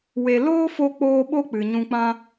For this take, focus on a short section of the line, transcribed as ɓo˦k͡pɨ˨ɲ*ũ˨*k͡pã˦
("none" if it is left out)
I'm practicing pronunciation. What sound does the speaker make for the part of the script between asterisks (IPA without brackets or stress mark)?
ũ˧